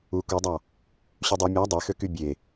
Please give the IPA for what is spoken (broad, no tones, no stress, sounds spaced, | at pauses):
u k u dˤ ɑ | ɕ y dˤ u mʲ æ dˤ e x ø k y bʲ e